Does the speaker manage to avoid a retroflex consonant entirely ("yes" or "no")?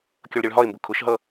no